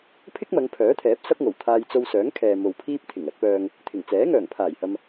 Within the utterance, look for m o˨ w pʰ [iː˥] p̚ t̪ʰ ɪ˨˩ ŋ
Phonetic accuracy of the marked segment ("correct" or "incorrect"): correct